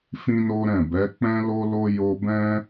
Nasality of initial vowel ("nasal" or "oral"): nasal